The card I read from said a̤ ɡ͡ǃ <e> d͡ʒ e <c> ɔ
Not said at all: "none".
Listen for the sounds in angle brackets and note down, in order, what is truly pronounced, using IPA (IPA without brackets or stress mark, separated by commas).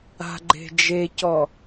e̤, c